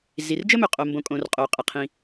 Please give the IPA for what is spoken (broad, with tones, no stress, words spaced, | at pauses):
zi˩rd͡ʒə˥mɵ˩ qʼo˩ mbõ˩kʼõ˩r qʼo˩qʼə˩qʰĩ˩